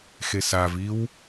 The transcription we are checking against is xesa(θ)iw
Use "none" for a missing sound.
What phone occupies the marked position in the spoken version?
v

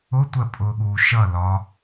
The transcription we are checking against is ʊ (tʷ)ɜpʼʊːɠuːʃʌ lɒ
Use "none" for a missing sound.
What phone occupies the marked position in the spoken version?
tʷ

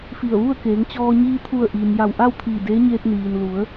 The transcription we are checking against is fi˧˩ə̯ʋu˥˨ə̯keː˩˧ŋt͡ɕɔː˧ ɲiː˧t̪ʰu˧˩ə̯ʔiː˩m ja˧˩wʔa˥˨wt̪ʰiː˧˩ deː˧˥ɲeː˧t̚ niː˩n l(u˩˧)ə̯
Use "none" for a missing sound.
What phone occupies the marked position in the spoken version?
u˩˧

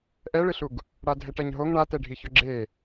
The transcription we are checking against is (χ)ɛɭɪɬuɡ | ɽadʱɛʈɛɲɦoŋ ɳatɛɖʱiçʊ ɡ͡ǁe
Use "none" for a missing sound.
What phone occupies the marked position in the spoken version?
ʔ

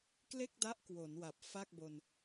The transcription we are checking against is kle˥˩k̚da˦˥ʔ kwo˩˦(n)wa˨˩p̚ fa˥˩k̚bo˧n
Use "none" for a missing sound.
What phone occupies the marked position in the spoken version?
n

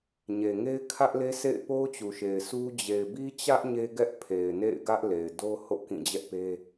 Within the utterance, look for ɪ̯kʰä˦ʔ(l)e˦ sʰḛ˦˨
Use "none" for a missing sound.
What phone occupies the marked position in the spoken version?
l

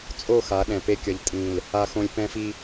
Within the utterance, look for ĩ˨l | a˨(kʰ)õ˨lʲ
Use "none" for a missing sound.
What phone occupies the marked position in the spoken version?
x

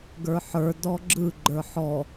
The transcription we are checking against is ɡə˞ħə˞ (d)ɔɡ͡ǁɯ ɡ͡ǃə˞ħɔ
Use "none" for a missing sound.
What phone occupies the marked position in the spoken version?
d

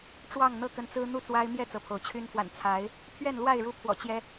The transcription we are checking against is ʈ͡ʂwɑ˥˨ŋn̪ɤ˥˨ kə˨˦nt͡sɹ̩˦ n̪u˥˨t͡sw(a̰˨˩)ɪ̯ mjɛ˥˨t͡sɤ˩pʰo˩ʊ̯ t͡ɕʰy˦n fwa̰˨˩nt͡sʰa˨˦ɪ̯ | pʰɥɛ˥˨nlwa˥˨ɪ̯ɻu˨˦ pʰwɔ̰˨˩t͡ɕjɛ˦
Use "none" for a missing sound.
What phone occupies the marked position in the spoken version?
a˦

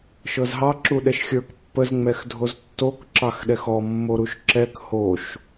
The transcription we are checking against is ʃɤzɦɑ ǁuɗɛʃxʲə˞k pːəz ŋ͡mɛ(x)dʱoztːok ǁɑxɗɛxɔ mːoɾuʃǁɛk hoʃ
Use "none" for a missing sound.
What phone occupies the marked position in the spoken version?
x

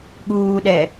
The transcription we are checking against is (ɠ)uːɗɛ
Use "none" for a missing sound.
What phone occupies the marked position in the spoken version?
ɠ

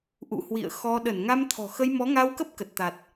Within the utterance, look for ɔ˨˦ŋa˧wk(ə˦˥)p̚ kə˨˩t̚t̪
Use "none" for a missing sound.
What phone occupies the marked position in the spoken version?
ə˦˥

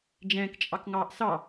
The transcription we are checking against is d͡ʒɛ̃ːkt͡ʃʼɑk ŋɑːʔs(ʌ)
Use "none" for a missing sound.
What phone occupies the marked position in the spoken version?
ɑ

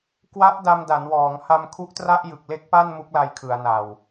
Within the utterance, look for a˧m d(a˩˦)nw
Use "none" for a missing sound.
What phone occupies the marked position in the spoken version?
a˩˦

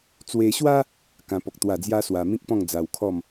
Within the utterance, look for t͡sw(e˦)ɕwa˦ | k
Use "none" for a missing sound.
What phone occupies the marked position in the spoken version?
e˧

